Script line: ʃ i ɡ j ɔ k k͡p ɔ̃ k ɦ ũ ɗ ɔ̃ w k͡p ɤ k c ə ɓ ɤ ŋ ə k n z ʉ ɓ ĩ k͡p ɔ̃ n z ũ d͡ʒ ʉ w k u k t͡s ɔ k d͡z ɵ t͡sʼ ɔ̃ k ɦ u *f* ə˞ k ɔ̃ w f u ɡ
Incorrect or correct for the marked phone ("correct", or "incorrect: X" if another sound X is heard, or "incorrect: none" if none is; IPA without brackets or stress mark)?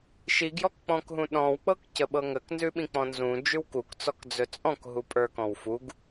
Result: incorrect: pʼ